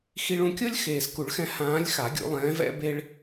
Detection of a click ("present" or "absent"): absent